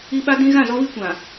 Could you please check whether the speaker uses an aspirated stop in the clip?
no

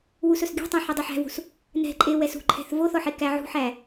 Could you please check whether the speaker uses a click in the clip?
yes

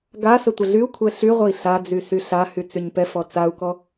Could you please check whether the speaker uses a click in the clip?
no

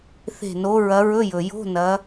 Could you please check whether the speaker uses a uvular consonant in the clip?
no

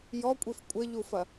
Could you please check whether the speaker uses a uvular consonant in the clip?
no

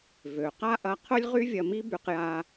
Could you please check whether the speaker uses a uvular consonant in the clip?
yes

